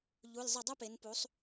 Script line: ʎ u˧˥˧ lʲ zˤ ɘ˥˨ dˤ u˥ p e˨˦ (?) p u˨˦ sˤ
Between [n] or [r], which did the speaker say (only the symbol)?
n